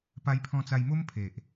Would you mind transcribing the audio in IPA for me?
p a˧ j pʰ ɔ̃˧ t͡s a˧ j m o˦ m pʰ e˨ ʔ

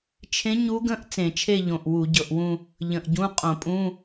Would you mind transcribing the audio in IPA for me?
t͡ʃʰ ẽ˧˥ ɲ u˧˥ ɡ ə̃˧˥˧ ʔ t͡s ẽ˧˩˧ t͡ʃʰ e˥˧ ʎ õ˨˩ ʔ w u˧˩˧ ɟ ɤ˨˩ ʔ w ũ˥˧ | ʎ ə̃˨˩ ʔ ɟ ũ˧˥˧ qʼ õ˧˩˧ pʼ ũ˧˥˧

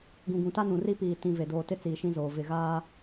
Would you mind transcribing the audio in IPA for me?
ɡ ũ˨ ɡ ũ˨ t a˦ n ũ˨ r i˦ p iː˨ t ĩ˨ v e˨ d oː˨ t ɪ˦ t͡s iː˨ ʃ ĩ˦ z oː˨ v ɪ˨ ɣ aː˦

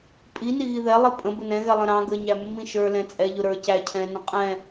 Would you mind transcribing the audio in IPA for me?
pʼ i n i ɣ i ð ɛ lˠ i pʼ ə̃ b ə n ɛ̃ ɣ ɛ lˠ ə̃ ɾ ɑ̃ ɡ ə ɲ æ mː ĩ ʃ ə˞ l ɛ̃ t͡sʼ ɛ ʎ ʊ ɾ ə˞ c æ cʰ ɛ̃ n ə̃ qʼ ɛ̃

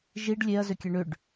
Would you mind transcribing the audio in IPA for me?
ʒ i ɖ lʲ e ɐ̯ z ʏ kʲ ɛ ɳ ʏ ɖ

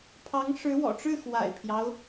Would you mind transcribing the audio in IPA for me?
pʰ ɑ˧˥ ŋ ʂ ɻ̩˧˥ w ɔ̰˨˩ ʈ͡ʂ ɻ̩˥˩ x w a̰˨˩ ɪ̯ pʰ j ɑ˦ ʊ̯

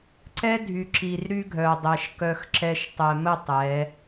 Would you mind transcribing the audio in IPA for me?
ǀ ɛ˦ dʱ y˨ ǁ i˨ r ɾ y˦ ɡʱ œ˨ dˤ ɛ˨ ʃ k œ˦ x ǁ ɛ˦ ʃ tˤ ɛ˨ m ə˦˨ tˤ ɛ˨˦

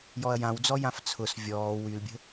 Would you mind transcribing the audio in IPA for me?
j ɔ ɐ̯ j ã w d͡z ɔ j ã f t͡sʰ ʊ s vʲ ɔː w y l bʲ ə̤

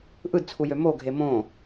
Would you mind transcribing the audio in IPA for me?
ʔ ɯ d t͡sʰ u j ø m o ɡʱ e m õ

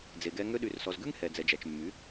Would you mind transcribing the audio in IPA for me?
d͡z e˨ ɡ ɛ˧ ŋ ø˧ ɗ y˨ r s ɔ˨ z ɡ ʉ˦ ŋ h ɛ˨ d͡z ɛ˨ d͡ʒ æ˨ t͡ʃ mː y˨˦

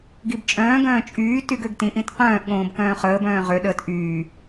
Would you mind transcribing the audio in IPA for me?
ɡ i b t͡ʃʼ œ̃ː ɡ œ̃ː t͡ʃʼ yː t y ɡ ø ɡ t ĩ ʔ ĩ t q œ̃ː ʔ ɠ õː b k œ̃ː χ əː b œ̃ː ʁ ø ɗ əː t ʔ yː

